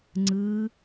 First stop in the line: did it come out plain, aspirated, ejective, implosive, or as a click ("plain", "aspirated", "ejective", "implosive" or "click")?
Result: click